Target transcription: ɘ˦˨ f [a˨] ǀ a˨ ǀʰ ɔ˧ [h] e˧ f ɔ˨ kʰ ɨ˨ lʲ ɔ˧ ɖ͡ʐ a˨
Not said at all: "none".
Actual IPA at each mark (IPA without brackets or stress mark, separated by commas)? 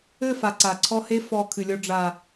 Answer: a˨, h